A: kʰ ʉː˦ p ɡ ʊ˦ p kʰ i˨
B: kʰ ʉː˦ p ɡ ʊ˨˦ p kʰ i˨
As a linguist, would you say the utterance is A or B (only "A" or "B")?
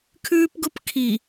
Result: A